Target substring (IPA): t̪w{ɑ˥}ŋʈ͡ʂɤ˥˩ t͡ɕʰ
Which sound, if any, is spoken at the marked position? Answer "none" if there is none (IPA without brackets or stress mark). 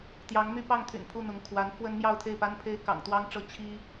ɑ˥